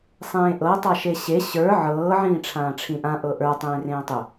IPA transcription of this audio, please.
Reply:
sˤ ẽː ʔ ɤ tˤ a ʃ e ɕ e ɕ ə˞ ʕ ɤː ʕ ĩː ʈ͡ʂʰ ãː ʈ͡ʂʰ ĩ ʔ ã ʔ ɤ ʔ ə˞ tˤ ẽː r ẽː tˤ ʏ

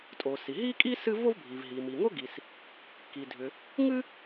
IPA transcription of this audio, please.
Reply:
tʼ o˩ s i˩ ɦ i˥ kʼ i˥ s ɨ˥ v o˥ v bʱ i˩ v ɦ i˩ m i˩ ŋ o˥ ɡ i˩ s | k i˩ dʱ ʏ˩ | ŋ ɨ˥

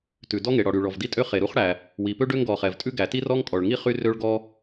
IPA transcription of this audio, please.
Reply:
t ʉ˩ d ɔ˥ ŋ e˩ ɽ ɔ˩ ɽ y˩ ɭ ɔ˩ v d i˥ tʼ ø˥ χ e˩ ɾ u˥ χ ɽ æ˩ | w i˩ p ø˥ ɖ ø˥ ŋ ɡ ɔ˩ χ ɛ˩ v tʼ ʉ˥ ɡ æ˩ t i˥ r ɔ˥ ŋ kʼ ɔ˩ ɭ ŋ i˥ χ y˥ r ø˥ ɭ ɡ ɔ˥

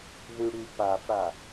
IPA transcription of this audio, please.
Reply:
ð y ɽ y p a f ɽ a

